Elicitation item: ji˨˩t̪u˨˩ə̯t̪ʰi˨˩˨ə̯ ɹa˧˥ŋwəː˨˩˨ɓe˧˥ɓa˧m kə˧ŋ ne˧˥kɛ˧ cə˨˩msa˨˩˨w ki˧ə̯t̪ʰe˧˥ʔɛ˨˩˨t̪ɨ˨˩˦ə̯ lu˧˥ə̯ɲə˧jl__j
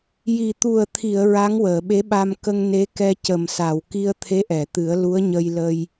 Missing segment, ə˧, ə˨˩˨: ə˧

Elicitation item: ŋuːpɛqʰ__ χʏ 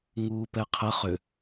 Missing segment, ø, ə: ə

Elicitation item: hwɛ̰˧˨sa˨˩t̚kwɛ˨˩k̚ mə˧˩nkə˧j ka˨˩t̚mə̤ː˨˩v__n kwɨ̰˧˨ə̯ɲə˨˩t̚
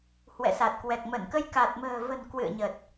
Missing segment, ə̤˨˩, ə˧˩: ə̤˨˩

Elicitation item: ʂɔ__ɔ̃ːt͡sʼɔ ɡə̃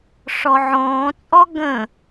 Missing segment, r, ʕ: ʕ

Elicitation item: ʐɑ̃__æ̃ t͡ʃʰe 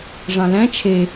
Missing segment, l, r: l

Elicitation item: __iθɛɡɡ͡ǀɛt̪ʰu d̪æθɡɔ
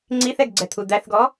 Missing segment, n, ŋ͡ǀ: ŋ͡ǀ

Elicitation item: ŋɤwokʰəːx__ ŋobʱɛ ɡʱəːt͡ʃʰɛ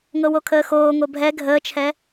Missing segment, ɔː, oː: oː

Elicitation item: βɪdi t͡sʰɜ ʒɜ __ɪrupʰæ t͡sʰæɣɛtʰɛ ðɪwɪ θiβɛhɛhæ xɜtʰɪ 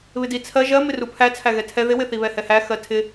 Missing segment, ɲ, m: m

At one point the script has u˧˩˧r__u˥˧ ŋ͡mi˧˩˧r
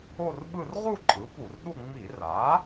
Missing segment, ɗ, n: ɗ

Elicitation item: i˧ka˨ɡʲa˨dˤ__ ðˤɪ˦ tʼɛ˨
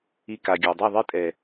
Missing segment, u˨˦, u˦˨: u˦˨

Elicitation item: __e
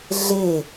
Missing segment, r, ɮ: ɮ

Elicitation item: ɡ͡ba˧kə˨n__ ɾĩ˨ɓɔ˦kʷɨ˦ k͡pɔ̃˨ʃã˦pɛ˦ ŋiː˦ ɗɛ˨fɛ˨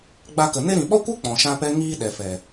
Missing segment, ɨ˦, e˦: e˦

